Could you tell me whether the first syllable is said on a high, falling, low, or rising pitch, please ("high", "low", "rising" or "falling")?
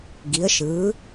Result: rising